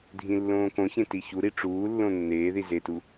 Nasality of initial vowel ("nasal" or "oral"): nasal